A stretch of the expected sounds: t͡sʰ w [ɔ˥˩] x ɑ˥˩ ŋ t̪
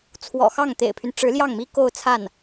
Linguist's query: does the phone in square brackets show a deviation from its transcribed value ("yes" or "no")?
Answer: yes